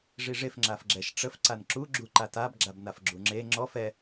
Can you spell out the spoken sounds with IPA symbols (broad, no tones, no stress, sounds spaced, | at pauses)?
ʐ i ʐ e f ŋ͡ǁ a f ɡ͡ǁ ɛ ʃ ʈ͡ʂ ə f ǀ a n ǁ u ɡ͡ǁ u ǃ a t a b ɡ͡ǁ a b n a f ɡ͡ǁ u ŋ͡ǁ e ŋ͡ǁ ɔ f ɛ